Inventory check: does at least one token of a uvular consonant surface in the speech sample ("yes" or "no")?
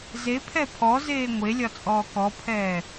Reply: no